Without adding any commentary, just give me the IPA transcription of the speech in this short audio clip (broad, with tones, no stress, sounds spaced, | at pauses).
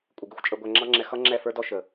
kʷʼ ɪ˨ ɡ ɪ˦ xʷ t͡ʃʼ ə˧ ɡʷ æ˧ ŋ͡ǁ ɑ˦ ŋ͡ǁ ɛ˧ x ʌ˦ ŋ͡ǁ ɛ˦˨ f ə˞˦ d ɔ˦ ʃ ə˨